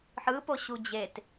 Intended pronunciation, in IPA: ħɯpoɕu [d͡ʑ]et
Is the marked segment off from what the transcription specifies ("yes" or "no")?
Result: no